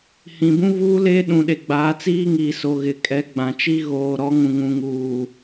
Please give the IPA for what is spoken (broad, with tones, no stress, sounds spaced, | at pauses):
h ĩ˨ b ũ˦ v uː˦ l eː˦ ɗ ũ˨ ɗ e˨ ɡ͡b aː˨˦ t͡s iː˦ ŋ iː˨ s o˨ ɣ ɪ˨ kʼ ɛ˨˦ ɡ͡b ã˨ t͡ʃ i˦ ɣ oː˨ ɾ ɔ˨˦ ŋ ũ˨ ŋ ũ˨ ŋ uː˨